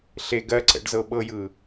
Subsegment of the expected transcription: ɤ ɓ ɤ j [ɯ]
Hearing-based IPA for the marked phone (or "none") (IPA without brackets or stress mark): ɯ